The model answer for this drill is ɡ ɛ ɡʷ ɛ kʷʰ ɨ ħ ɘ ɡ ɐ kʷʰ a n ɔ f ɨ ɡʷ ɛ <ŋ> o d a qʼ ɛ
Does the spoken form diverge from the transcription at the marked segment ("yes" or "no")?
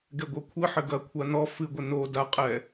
yes